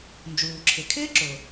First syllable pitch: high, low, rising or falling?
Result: low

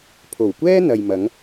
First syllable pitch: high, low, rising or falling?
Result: low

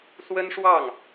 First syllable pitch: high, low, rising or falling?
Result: high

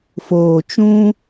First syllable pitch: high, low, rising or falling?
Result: low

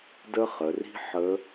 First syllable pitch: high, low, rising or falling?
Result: high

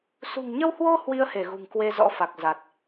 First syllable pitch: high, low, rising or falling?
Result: low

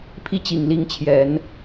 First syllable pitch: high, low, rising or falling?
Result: falling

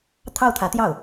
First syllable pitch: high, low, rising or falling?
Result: falling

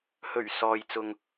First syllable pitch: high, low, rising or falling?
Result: low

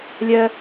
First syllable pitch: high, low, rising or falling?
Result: high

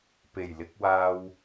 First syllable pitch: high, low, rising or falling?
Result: low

